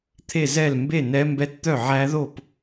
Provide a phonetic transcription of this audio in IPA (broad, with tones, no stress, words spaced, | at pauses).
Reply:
t̪ʰe˥˧zɛ˥˧l mbe˥˧nɛ˦˥ mbɛ˦˥tt̪œ˥˧ ʕæ˦˥ðo˥˧p